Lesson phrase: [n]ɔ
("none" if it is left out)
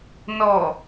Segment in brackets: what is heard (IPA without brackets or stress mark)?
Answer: n